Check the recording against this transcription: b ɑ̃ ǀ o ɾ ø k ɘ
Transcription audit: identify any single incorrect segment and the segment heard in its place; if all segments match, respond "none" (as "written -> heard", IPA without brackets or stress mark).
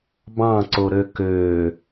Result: ɘ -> ø